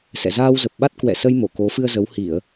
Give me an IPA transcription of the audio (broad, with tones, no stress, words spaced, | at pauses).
sɛ̰˧˨zaː˧wzə˨˩p̚ɓa˦˥t̚ kwɛ̰˧˨sə˧j mo˧˩ko˨˦ fɨ˧ə̯zə˨˦w hi˧˩˨ə̯